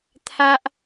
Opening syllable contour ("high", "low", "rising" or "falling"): high